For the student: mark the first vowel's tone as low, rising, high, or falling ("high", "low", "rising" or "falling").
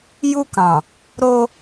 high